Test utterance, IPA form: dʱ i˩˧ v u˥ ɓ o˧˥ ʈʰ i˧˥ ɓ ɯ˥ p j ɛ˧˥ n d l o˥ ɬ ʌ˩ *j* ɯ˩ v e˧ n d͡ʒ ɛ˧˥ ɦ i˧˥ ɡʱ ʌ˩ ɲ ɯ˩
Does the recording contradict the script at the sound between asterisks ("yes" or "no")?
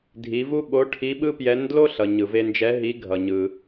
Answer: yes